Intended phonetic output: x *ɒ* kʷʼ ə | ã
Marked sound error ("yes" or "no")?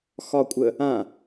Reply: no